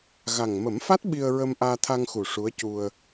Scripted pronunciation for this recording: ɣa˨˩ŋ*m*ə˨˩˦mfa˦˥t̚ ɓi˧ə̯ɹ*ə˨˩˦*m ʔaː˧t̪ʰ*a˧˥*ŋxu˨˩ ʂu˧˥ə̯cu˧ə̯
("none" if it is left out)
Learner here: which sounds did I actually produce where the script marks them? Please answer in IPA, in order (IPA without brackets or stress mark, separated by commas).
m, ə˧, a˧